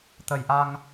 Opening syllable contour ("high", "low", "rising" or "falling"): low